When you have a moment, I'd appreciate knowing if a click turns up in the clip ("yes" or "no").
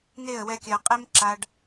yes